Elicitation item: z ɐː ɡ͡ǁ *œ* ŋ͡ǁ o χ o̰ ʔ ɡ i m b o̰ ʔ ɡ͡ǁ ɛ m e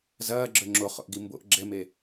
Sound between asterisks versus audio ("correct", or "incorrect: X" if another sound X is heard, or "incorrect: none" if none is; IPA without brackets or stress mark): correct